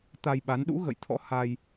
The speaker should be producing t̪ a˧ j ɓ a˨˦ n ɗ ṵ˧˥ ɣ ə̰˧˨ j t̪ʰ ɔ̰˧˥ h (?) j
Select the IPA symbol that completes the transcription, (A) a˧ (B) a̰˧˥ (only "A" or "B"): A